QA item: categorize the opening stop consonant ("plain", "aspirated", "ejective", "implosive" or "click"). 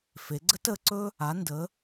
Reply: click